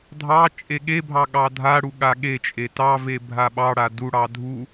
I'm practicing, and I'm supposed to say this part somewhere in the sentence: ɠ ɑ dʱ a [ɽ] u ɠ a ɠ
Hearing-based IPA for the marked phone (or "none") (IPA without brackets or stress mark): ɽ